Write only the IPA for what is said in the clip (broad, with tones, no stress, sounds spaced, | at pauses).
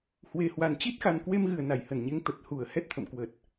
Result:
h w e˨˩ h w a˨˩ n t͡ɕ i˦˥ t̚ x a˨˩ n k w e˧ m ɣ ɨ˧˩ ə̯ n a˧˩ j h ə˧˩ n ɲ e˨˦ ŋ t̪ ə˨˩ t̚ h u˧˩ ə̯ h ɛ˦˥ t̚ t̪ʰ ə̰˧˨ m k w ə˨˩ t̚